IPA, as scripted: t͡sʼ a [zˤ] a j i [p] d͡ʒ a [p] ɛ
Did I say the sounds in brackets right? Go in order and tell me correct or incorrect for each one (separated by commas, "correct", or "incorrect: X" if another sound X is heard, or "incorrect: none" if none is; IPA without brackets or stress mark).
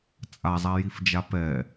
correct, incorrect: f, correct